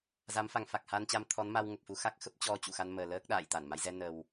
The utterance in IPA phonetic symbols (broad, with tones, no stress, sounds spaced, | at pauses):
z a˨˦ m f a˨˩ ŋ f a˨˩ k̚ h a˧ n t͡ɕ a˧ m t̪ʰ ɔ˨˦ n m a˧ w ŋ ə˨˩ p̚ f u˧ x a˦˥ k̚ x ə˦˥ p̚ t͡ɕ ɔ˧ t͡ɕ ṵ˧˨ x a˧ n m əː˨˩ l əː˦˥ k̚ ɗ a̰ː˧˨ j t̪ a˧˩ n m a˨˦ j z ɛ˧ n ə˨˩ w